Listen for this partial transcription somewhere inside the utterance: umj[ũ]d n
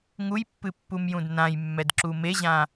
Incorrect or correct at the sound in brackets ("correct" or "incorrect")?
correct